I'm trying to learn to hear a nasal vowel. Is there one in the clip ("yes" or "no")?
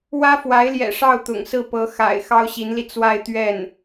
no